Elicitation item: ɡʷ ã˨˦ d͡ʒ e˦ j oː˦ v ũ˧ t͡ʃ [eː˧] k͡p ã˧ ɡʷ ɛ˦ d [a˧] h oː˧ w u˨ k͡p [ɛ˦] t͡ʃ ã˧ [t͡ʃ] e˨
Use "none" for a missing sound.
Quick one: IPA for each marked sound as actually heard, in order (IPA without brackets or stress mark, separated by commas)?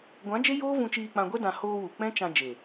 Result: iː˧, ã˧, ɛ̃˦, d͡ʒ